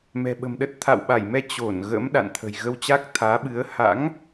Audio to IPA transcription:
mɛ̤˨˩ɓə̤˨˩mɗə˦˥t̚ t̪ʰa̰˧˨wɓa˧˩jmɛ˧ t͡ɕo˧˩n ɣə̰˧˥m ɗa̰˧˨nt̪ʰə̤˨˩j ɣə˧wt͡ɕa˦˥k̚t̪ʰaː˨˦ɓɨ˨˦ə̯ ha̰˧˥ŋ

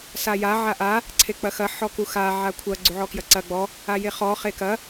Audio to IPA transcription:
saja ʕaʔa | ǀʰek͡pɐxɐ ħɔkuxa ʕakʷʰɐ ɡ͡ǀuʕɔkjɐǀɐ ɡ͡bɔ | ajeχɔ χekɐ

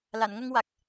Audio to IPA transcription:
la˨˩˨nŋə˧ŋwa˨˩k̚

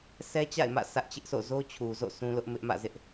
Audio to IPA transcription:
sʰɛ˦t͡ɕa̰˦˨ɪ̯mä̰˦˨ sʰä˦ʔt͡ɕɪ˦ʔsʰo̰˦˨ zo˦t͡ɕʰu˨zo̰˦˨ sũ˦lʊ˦ʔ mɪ˦ʔmä̰˦˨zɪ˦ʔ

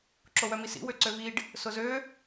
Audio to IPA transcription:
ǁowœmisḭ wøǀøviɖ | sʊzø

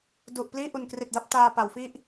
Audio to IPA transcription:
du˨˩ʔ pliː˥˩ʔu˨˩nkri˨˩t̚da˥˩p̚ taː˧pa˩˦wfi˥˩ʔ

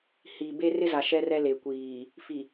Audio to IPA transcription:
hi˨ be˦ rɪ˦za˨ ʃɛ˦rɛ˦ le˨kʷiː˨ | fi˨

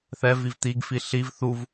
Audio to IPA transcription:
θɛviv t̪iɡfi ɬiv θuv

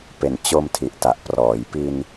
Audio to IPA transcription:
pe˨˩nt͡ɕo˧mtʰi˨˩ʔ ta˨˩ʔprɔː˩˦j pi˧n

